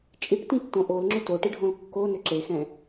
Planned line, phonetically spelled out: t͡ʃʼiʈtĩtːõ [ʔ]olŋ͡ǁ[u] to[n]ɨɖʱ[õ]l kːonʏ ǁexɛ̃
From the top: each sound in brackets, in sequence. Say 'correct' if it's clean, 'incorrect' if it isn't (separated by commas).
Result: correct, incorrect, incorrect, correct